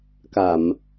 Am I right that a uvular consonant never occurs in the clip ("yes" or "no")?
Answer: yes